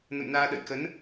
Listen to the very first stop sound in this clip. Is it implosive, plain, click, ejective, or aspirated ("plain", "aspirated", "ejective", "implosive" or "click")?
implosive